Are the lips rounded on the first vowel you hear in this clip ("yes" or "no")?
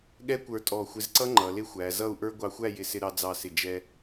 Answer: no